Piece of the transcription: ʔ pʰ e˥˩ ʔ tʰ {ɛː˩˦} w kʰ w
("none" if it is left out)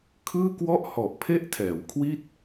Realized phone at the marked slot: ɛː˩˦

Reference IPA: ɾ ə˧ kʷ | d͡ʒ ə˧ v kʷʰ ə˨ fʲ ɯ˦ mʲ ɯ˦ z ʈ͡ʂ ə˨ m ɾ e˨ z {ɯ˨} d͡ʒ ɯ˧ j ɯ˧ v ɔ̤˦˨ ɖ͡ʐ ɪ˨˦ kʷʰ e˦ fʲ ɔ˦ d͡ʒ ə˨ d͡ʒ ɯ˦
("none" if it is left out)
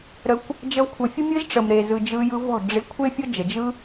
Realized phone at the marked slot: ɯ˨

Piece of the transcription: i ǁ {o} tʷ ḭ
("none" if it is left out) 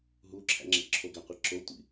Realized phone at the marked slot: o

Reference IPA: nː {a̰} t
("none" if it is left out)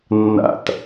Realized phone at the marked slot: a̰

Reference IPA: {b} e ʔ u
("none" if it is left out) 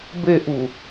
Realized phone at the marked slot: b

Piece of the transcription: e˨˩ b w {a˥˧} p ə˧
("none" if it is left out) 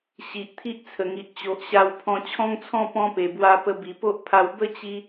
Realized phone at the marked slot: a˧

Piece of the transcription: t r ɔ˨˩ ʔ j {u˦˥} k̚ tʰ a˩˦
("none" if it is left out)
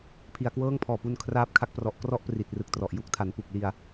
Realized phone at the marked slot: u˦˥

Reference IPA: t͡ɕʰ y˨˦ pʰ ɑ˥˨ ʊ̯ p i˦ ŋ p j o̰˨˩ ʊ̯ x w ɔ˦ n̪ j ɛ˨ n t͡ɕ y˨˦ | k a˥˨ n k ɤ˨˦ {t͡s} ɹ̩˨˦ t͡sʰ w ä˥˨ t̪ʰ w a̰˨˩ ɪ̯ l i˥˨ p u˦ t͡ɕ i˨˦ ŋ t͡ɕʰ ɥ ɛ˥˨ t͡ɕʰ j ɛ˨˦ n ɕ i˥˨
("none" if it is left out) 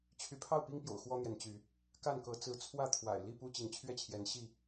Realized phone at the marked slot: t͡s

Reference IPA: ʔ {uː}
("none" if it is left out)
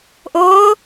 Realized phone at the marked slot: ʊː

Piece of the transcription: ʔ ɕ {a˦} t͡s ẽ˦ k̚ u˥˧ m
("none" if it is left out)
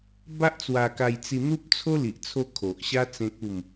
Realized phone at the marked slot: a˦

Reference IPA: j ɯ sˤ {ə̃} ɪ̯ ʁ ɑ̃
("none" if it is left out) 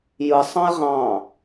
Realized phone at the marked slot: ɑ̃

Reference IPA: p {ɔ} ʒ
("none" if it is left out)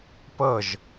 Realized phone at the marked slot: ɤ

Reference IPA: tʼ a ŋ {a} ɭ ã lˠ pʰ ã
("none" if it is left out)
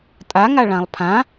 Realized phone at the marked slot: a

